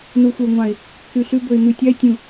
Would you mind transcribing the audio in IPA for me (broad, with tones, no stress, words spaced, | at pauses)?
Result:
nu˨xʷɛ˨ʊ̯ŋʷɑ̃˨ɪ̯ | kʉ˨ɬʉ˦bɵ˨ɪ̯ n̪ʉ˨tʲɑ˦ɪ̯ tʲũ˨